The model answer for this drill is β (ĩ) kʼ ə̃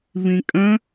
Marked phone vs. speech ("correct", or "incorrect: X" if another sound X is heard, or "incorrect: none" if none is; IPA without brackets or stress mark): correct